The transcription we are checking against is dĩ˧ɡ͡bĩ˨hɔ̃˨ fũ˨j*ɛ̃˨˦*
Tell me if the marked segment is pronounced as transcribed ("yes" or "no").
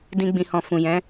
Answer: yes